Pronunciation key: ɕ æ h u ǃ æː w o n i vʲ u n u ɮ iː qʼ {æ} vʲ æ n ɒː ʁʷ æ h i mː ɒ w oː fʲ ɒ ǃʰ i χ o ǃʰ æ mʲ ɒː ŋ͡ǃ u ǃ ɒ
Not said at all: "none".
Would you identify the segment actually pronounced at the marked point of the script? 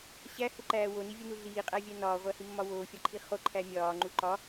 æ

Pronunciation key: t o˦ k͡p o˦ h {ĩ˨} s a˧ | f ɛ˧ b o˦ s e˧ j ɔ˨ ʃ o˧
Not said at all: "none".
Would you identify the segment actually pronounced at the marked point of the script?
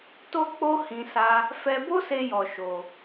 ĩ˧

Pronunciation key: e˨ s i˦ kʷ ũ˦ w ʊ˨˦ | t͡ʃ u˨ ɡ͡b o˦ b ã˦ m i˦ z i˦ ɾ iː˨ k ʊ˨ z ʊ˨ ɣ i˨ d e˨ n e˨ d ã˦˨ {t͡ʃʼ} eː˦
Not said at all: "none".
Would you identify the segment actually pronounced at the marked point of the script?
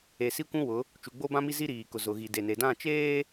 t͡ʃ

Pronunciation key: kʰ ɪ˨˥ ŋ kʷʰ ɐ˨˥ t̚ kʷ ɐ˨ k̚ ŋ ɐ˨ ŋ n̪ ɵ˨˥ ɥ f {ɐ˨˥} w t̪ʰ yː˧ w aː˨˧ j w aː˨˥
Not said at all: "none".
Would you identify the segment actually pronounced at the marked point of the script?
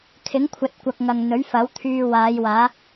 ɐ˨˥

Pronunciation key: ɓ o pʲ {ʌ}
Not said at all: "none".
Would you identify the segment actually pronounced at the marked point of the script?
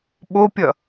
ʌ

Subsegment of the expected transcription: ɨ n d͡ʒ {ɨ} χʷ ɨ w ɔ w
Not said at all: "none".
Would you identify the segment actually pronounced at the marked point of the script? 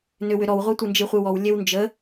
ɨ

